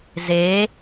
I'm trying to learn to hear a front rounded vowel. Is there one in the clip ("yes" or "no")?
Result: no